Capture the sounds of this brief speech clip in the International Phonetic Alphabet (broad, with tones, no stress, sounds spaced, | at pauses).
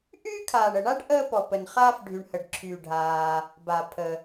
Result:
ʔ yː˥ kʰ aː˩ ɳ ə˩ ɳ a˥ ɖ ʔ əː˥ p ɔ˩ p ə˩ n χ aː˥ f ɖʱ y˩ ɳ h ə˩ ɖ ǁʰ yː˩ ɖʱ aː˩ | b a˩ pʰ ə˩